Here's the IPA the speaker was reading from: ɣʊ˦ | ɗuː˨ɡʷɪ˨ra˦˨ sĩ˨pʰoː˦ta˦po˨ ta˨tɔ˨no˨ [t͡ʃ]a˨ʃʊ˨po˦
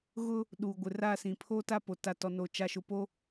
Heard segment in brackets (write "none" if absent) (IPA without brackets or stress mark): t͡ʃ